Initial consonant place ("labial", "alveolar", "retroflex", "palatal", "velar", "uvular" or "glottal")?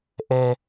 glottal